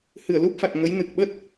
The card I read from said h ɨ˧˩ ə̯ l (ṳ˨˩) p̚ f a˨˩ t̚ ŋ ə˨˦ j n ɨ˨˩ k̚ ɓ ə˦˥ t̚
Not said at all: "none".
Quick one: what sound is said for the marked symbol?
u˦˥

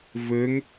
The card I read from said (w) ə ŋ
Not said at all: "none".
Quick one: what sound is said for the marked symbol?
v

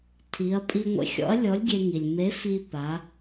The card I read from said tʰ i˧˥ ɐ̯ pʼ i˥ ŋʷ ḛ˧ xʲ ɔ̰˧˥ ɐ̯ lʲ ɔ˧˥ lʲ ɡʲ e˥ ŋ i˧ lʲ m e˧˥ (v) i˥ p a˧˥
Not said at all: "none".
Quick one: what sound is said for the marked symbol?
f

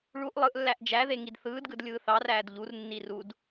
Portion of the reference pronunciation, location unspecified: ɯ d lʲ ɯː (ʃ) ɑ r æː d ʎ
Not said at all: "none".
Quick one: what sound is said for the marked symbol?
θ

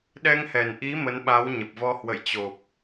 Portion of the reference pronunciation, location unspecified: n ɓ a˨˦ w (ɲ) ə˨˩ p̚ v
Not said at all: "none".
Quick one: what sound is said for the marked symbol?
ɲ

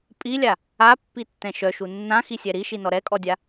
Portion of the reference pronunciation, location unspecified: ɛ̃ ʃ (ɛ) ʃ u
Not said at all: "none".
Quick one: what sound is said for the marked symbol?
œ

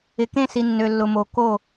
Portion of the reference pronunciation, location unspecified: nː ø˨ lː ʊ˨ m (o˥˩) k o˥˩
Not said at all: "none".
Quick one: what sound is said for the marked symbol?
o˨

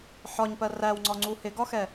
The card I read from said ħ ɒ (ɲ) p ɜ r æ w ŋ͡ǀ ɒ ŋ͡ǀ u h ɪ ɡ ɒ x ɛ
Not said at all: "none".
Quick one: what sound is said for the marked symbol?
ɲ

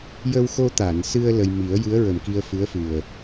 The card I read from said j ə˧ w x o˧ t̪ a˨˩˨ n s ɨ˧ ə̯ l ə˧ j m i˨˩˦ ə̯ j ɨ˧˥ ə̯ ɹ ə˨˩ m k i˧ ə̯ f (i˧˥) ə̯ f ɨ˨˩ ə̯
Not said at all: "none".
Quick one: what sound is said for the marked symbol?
ɨ˧˥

